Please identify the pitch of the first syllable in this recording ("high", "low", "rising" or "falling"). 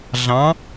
rising